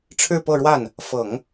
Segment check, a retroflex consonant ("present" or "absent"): present